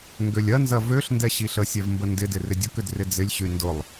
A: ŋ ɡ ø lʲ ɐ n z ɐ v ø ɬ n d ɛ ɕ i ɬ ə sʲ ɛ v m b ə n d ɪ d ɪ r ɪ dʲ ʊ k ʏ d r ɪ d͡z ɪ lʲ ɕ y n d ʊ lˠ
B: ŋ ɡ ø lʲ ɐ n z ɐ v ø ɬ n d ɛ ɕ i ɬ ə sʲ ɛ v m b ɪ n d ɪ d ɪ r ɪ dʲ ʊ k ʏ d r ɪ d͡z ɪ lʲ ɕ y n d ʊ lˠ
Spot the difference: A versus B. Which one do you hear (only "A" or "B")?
A